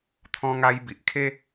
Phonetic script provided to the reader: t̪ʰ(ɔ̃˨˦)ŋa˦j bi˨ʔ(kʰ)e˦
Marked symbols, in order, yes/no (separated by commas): no, yes